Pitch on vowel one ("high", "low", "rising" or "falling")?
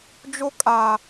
high